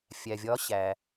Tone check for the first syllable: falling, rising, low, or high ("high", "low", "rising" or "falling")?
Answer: low